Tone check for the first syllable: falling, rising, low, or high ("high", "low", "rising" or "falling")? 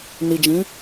low